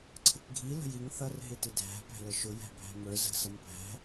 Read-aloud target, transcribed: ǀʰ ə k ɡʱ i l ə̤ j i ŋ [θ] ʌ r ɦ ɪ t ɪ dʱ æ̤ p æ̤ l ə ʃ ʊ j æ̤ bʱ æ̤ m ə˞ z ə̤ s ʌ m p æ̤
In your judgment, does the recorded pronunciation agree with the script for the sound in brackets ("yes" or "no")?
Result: yes